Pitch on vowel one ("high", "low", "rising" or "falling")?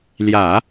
low